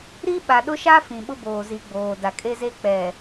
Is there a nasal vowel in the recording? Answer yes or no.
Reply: yes